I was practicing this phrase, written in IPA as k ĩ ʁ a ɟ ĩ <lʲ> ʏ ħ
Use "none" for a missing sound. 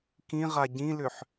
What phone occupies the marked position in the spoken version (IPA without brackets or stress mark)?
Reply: l